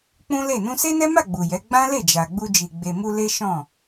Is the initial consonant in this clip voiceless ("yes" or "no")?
yes